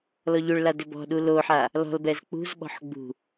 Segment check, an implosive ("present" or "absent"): present